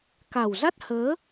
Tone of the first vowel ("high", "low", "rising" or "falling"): low